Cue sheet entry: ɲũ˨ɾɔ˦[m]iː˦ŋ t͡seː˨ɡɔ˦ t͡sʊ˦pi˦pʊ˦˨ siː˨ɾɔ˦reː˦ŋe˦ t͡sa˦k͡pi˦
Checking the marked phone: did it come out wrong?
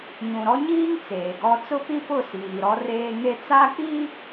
yes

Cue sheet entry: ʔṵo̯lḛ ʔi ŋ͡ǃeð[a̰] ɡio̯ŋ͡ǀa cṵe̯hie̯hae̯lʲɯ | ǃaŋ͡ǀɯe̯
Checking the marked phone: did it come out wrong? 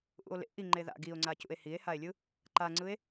no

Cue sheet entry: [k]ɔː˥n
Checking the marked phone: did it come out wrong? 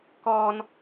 no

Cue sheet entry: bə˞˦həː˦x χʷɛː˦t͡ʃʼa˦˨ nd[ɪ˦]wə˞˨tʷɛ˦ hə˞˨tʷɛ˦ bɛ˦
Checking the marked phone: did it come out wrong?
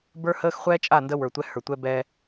yes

